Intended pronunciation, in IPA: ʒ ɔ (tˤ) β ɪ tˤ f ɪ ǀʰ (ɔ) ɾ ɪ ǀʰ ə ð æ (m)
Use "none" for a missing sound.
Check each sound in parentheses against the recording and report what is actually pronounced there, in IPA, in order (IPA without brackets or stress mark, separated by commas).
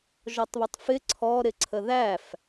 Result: tˤ, ɔ, f